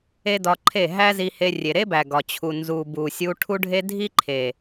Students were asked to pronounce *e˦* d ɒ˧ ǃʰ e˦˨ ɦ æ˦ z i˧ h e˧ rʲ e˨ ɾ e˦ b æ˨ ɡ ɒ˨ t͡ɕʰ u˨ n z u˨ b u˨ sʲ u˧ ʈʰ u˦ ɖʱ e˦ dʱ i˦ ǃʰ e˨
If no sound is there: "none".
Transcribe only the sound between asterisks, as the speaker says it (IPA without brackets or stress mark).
e˦